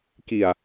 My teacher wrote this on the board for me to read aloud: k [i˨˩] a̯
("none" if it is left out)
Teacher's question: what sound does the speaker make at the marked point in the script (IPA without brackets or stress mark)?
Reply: i˨˩